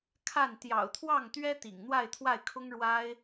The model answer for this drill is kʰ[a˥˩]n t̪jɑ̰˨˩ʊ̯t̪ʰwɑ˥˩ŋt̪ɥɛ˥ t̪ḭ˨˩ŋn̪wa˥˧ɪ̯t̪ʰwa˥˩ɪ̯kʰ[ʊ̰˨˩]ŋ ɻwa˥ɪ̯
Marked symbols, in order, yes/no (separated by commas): yes, no